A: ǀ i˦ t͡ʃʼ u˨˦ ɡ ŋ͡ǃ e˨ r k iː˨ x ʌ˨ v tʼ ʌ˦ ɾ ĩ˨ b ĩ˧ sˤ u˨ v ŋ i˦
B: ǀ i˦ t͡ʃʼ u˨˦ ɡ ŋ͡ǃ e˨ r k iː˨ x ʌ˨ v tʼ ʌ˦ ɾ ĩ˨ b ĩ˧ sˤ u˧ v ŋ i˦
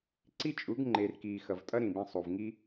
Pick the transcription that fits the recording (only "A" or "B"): A